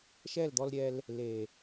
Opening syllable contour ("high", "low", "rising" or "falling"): falling